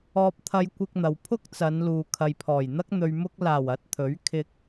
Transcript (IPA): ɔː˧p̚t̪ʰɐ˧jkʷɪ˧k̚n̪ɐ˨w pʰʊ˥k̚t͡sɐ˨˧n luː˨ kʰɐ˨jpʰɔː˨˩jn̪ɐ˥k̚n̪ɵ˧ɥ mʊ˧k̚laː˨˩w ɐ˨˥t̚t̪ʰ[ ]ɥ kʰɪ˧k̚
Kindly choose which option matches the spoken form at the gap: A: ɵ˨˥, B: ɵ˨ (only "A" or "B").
A